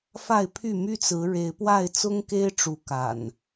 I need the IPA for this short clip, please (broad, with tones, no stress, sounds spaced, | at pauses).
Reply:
f a˥˨ ɪ̯ pʰ y˥˨ m y˦ t͡s ɹ̩˨˦ ɻ e˨˦ ɪ̯ p w a˥˨ ɪ̯ t͡s ʊ˦ ŋ k e˦ ɪ̯ ʈ͡ʂ u˨˦ k a̰˨˩ n